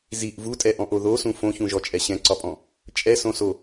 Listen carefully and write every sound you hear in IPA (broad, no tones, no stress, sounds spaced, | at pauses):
z i ʔ v u tʼ ɛ ʔ ɔ̃ ʔ o ð o s ũ f õ ç ũ ʒ ɔ t͡ʃʼ ɛ ɕ ɛ̃ ǀ ɒ pʼ ɔ̃ | t͡ʃʼ ɛ s õ s o